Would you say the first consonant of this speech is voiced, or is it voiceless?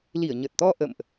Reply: voiced